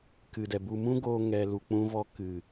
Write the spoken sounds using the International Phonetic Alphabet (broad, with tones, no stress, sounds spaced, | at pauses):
k ɨ˨ d ɛ˨ b u˧ m ũ˦ ɡ oː˧ ŋ ɛ˧ l u˨ k͡p ũ˧ v ɔ˧ k ɨ˨